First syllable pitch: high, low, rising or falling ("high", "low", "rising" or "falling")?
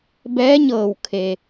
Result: rising